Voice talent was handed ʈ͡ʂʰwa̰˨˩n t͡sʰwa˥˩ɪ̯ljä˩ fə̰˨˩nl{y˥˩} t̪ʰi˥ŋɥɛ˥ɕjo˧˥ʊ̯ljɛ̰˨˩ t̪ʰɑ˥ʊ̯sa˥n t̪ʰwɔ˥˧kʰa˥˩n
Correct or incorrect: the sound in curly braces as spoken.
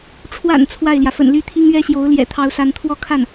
correct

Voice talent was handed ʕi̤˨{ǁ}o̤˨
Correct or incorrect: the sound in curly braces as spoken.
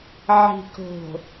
incorrect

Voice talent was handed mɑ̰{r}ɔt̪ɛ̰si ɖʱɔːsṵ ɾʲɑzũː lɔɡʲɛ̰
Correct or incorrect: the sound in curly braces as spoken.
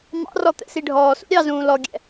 correct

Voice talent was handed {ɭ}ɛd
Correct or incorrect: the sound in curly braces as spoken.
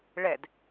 correct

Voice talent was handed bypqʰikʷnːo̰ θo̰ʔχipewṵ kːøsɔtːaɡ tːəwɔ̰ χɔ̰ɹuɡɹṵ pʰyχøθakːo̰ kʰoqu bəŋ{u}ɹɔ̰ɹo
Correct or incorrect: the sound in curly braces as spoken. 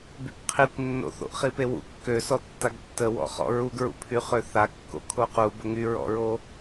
incorrect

